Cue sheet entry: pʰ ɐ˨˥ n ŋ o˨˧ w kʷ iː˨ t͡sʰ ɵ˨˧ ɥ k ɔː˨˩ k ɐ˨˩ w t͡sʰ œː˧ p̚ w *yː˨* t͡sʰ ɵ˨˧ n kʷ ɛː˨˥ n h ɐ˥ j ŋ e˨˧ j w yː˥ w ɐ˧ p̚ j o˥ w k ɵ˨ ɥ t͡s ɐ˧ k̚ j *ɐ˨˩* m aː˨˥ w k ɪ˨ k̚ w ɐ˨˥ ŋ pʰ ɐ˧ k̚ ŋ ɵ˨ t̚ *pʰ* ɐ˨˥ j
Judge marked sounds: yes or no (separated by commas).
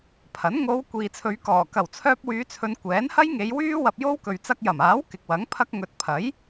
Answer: no, yes, yes